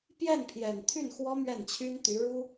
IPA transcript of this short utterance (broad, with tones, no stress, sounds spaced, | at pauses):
p j ɛ˥˩ n pʰ j ɛ˨˩ n t̪ʰ y˥˩ n x w ɔ˥ m ɥ ɛ˥˩ n t͡ɕʰ y˥ n t̪ y˧˥ ɻ u˥